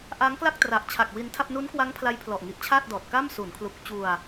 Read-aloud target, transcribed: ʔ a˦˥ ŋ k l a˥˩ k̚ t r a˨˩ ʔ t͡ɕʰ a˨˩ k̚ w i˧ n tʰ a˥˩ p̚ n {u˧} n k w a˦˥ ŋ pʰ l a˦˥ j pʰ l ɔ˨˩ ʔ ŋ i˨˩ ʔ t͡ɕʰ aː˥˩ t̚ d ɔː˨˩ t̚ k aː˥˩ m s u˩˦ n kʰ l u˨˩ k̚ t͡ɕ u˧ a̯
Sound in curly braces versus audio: incorrect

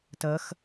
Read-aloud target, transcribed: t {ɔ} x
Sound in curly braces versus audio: incorrect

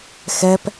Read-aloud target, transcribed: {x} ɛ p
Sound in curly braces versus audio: correct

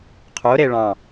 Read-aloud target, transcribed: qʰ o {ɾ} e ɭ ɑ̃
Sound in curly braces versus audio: correct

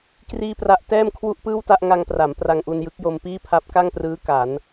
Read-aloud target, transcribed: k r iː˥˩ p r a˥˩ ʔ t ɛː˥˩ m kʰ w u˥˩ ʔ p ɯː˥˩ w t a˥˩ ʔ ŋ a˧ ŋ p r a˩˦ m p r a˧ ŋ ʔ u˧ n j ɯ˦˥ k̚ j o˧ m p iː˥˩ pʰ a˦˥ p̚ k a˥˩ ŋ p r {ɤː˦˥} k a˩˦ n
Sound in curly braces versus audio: incorrect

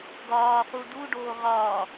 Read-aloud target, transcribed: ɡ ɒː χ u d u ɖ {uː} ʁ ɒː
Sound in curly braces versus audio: incorrect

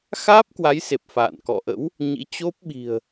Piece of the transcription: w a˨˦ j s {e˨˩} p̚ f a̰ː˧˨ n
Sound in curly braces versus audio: correct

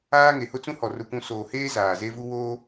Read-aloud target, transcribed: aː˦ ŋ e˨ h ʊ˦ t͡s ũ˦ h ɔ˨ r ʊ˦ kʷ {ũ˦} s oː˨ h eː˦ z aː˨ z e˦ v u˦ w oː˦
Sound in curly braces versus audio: correct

